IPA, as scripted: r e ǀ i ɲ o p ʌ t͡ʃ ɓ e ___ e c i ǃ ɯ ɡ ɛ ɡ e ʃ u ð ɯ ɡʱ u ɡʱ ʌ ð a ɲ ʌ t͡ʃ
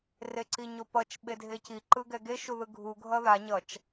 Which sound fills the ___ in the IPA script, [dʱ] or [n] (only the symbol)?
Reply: dʱ